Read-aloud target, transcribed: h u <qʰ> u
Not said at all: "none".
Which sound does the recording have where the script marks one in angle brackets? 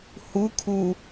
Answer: kʰ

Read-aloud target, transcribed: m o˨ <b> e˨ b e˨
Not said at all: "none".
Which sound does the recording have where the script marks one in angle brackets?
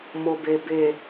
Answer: b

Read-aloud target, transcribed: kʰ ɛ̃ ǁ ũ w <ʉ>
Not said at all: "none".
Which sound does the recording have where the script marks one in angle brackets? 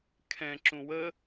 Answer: ə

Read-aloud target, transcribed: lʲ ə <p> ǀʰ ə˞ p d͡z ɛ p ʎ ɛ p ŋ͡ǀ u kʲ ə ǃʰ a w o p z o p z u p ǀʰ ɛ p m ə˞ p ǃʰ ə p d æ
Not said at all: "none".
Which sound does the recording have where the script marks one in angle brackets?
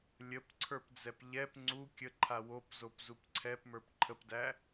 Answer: p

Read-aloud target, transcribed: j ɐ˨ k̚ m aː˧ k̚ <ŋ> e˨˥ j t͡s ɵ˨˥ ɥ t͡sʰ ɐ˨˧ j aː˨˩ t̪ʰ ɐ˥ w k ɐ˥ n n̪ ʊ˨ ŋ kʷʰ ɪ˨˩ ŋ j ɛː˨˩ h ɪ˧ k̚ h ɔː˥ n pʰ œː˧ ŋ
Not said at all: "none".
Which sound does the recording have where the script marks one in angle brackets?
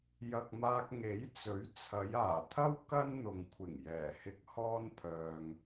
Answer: ŋ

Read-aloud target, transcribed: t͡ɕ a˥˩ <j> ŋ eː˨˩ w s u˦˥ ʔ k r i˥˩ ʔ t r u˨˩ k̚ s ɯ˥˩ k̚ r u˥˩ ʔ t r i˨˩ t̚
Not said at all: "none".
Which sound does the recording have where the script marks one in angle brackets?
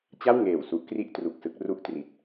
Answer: w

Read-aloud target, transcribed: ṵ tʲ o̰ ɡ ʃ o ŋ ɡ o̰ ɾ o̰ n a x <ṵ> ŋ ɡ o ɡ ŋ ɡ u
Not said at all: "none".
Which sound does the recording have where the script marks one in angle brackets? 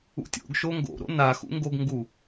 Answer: ṵ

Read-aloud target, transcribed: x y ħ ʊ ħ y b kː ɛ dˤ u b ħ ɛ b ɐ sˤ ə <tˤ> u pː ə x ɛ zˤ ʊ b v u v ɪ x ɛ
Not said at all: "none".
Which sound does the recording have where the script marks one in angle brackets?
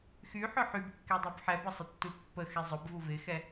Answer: tː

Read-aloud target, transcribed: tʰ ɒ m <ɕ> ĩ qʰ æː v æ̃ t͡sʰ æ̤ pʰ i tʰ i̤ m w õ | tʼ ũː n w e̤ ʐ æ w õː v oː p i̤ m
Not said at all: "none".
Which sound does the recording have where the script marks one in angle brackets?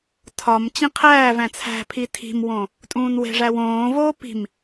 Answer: t͡ɕ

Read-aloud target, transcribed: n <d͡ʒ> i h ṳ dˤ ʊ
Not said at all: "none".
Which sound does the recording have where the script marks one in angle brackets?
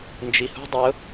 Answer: d͡ʒ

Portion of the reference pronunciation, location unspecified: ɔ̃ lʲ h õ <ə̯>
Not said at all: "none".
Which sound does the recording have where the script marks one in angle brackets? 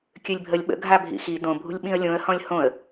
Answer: ə̯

